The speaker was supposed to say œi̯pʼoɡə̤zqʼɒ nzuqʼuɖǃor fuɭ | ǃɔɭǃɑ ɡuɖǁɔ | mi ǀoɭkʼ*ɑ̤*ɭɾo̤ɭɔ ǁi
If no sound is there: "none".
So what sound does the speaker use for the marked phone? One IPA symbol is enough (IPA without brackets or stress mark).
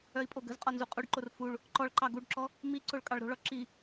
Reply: ɑ